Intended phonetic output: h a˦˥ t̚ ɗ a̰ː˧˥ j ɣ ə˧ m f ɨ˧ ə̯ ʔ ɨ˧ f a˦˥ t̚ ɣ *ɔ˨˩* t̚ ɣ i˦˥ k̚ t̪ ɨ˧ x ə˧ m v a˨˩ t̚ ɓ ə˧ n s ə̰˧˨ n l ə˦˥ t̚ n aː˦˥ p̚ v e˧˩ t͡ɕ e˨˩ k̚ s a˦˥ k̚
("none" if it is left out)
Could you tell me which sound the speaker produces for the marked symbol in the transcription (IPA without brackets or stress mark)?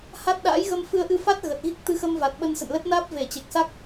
ə˨˩